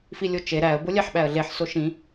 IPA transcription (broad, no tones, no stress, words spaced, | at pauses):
filʲot͡ʃe ɾæə̯ bolʲæħɓæə̯ɮeħ soʃĩ